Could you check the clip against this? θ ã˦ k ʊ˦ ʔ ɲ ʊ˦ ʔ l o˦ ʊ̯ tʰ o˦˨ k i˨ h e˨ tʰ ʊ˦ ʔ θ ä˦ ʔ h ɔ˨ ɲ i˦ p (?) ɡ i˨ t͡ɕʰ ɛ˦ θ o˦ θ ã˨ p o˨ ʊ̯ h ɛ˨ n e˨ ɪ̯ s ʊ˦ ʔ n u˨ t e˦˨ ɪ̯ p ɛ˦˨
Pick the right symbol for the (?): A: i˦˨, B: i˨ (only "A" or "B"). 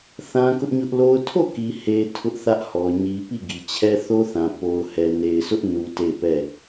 A